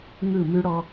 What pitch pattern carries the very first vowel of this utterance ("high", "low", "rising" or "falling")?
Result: falling